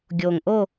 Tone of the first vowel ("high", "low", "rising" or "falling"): low